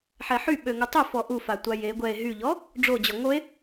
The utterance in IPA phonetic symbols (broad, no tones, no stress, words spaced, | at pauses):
ħɛħy ɓøŋutˤø fɔʔufatʷa je ɡʷɛe̯ ɦyʎɔ | ɖ͡ʐo d͡ʑɔŋoe̯